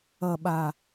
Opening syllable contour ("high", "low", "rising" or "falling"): low